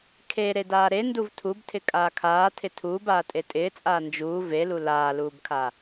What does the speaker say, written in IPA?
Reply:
kʰe ɾedaːɾenduv tʰubtʰɪ kʼaːkʰaːtʰɪ tʰuːb aːtʼetʼɪːt͡sʼaː nd͡ʒuː velu laːluːbkʰa

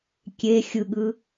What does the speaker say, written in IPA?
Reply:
kʲe xʲɯɠɯ

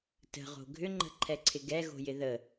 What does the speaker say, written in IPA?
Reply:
tə̤ʁo̤ ɡʱʏŋ͡ǃə̤ǃʰɛǀʰɪ ɡɛɣo̤jɪ ðə

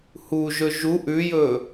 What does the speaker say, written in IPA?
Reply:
huʒɵ ʒuʔ ʉjɵ

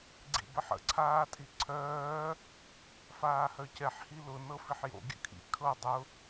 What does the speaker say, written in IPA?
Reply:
ɡ͡ǀḭbəħə̰ ǀʰaːtʼiǀʰœː | faːhœcɛħ hilʊ nɤfiħjo̰ ɡʲə̰kʰḭ kʰɤ dˤʊ

